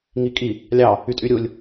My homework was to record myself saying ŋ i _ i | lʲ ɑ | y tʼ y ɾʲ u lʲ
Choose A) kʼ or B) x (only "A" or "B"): A